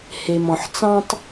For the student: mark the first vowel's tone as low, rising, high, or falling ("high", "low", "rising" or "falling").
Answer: low